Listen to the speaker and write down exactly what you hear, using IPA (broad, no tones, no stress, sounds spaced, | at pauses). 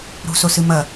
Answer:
ɾ ṳ s o s ɨ m ɐ